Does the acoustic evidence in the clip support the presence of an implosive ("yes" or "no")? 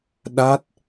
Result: yes